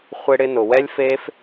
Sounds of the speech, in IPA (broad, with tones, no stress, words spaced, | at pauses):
χʷe˧ɽɪ˧nʊ˨ wɛ˦lʲfe˦f